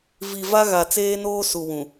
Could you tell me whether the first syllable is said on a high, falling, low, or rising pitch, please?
low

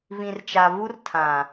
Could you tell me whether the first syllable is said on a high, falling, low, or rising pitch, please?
low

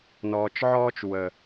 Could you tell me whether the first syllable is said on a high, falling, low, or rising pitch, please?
low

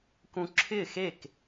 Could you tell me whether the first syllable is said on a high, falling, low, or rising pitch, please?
high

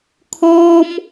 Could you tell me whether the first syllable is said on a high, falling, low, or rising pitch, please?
high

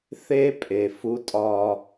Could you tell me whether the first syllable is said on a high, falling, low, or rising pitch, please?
high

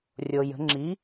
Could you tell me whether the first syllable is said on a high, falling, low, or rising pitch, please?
low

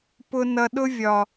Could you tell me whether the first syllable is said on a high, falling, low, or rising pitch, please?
low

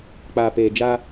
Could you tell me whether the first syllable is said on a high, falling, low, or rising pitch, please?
low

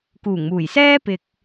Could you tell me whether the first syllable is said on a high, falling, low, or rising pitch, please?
low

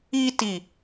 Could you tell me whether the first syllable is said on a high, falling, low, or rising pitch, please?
high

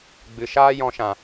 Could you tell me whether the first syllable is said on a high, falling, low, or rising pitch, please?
low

